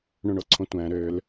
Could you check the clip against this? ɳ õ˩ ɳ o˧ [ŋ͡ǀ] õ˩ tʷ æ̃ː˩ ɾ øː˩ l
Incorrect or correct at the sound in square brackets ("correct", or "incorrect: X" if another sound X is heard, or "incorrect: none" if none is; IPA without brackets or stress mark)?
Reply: incorrect: ǀʰ